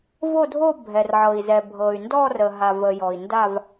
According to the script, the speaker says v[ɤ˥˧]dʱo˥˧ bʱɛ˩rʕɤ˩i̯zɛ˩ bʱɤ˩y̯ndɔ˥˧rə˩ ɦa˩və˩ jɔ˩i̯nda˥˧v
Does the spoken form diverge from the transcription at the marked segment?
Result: yes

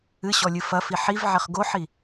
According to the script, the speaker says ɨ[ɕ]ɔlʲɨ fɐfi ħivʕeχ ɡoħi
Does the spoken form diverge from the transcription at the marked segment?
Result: no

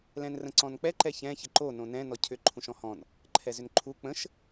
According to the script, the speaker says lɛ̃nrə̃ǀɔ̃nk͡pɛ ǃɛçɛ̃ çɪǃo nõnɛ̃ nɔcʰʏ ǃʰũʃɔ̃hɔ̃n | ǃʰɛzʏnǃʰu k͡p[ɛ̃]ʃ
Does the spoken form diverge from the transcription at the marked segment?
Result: yes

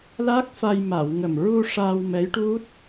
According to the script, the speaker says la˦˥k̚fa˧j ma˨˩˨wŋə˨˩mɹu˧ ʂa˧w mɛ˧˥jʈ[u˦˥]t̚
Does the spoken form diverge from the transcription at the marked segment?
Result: no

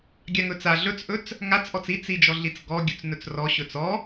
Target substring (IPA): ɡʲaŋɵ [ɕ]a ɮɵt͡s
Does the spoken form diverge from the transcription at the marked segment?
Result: yes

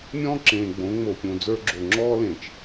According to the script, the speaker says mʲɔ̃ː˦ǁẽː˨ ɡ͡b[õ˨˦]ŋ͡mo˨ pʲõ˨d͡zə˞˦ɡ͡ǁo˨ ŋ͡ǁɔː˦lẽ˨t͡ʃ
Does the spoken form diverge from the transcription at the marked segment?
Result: no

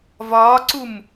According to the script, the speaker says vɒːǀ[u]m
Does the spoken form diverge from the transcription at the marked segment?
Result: no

